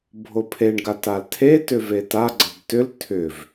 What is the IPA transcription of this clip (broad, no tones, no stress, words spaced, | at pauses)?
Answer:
bʱopʰeɳɡa taltʰetʏ vetaɡ͡ǀʌb tʏl tʰʏv